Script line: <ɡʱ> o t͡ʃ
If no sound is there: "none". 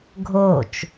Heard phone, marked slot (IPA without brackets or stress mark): ɡʱ